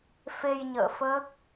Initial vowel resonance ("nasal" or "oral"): oral